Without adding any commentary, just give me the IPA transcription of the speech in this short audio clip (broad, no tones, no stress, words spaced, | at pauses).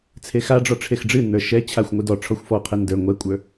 t͡sʰexaɖ͡ʐɔ ʈ͡ʂʰexɖ͡ʐɨnːə˞ ʃɛ t͡ɕʰaxʷŋʷɨ dɔ ʈ͡ʂʰɔxʷfɔqʰɛ ndə˞ ŋʷɛkʷʼə˞